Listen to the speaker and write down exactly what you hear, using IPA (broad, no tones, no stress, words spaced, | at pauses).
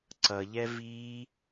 ǀʌʎɛ vi